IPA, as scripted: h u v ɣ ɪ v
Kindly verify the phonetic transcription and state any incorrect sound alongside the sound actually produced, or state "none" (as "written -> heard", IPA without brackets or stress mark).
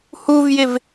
ɣ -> j